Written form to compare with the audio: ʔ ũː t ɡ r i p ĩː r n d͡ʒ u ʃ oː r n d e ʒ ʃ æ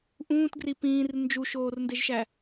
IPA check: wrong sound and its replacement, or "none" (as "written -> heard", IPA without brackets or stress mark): none